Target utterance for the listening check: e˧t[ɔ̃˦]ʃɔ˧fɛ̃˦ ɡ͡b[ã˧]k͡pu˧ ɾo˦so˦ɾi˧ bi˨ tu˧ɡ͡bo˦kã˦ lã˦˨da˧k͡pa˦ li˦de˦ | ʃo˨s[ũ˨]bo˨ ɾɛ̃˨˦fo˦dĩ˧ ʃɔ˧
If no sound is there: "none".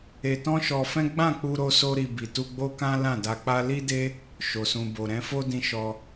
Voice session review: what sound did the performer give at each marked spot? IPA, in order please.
ɔ̃˦, ã˦˨, ũ˨

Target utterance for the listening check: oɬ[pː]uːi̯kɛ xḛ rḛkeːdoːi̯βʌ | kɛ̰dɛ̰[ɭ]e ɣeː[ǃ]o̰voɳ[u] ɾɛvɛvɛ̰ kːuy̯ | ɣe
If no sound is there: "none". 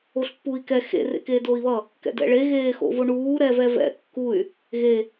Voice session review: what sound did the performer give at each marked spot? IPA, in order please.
pː, ɭ, x, uː

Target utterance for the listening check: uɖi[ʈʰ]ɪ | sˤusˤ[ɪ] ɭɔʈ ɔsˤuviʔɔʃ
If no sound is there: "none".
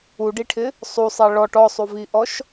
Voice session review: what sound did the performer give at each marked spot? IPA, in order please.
ʈʰ, ɛ

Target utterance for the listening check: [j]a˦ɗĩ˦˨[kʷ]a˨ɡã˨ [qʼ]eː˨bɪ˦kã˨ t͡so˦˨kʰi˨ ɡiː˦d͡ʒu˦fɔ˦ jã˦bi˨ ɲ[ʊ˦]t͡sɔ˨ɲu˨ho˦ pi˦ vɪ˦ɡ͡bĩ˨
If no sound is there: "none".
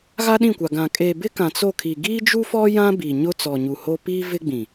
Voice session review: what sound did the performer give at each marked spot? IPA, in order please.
ɣ, kʷ, kʼ, ʊ˦

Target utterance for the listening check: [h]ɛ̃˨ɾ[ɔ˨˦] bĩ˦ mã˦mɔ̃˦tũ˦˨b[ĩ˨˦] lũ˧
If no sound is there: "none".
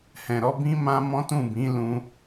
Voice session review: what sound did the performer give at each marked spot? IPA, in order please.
h, ɔ˨˦, ĩ˨˦

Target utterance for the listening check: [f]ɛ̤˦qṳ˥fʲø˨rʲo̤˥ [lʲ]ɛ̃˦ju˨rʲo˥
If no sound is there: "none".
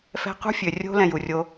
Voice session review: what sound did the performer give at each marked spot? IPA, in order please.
f, l

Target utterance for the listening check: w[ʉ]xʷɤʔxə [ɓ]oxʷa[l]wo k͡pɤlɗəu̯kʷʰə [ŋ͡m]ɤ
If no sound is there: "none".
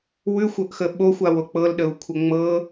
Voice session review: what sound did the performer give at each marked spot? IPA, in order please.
ʉ, ɓ, none, ŋ͡m

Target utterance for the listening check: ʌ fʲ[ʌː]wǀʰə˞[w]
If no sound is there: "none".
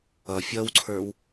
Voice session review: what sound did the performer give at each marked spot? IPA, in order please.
ʌ, w

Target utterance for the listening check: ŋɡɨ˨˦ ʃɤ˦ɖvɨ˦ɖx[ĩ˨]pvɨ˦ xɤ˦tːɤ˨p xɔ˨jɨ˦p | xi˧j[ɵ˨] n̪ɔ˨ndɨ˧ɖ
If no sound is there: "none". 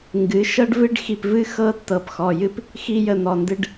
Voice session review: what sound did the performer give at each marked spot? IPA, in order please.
i˨, ə˨

